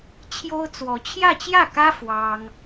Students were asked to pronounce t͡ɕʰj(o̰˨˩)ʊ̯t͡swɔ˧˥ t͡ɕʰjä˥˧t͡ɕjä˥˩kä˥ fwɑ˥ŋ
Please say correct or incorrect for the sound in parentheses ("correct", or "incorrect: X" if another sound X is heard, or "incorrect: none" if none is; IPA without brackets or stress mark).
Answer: incorrect: o˥